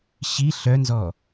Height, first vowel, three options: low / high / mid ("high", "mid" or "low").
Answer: high